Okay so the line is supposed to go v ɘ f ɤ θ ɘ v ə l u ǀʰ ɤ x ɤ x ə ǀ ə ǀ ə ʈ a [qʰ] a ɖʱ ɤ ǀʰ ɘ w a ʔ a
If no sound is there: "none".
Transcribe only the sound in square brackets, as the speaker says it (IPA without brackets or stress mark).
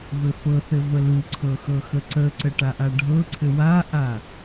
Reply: ʔ